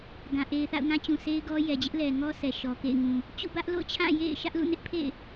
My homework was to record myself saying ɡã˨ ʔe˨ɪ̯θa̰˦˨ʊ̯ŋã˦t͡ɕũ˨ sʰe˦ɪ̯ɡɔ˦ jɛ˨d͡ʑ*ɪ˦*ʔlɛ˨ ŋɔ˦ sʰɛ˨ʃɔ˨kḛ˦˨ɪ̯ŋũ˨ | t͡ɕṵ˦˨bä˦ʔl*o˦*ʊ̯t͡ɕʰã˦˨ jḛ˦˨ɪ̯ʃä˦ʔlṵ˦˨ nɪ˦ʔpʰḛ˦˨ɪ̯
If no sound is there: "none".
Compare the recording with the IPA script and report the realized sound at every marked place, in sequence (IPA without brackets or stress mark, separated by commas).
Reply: ɪ˦, o̰˦˨